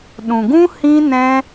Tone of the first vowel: low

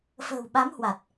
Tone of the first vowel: low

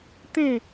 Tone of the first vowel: falling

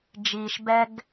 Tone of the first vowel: low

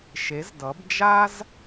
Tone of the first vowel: rising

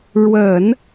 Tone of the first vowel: low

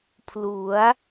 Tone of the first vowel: rising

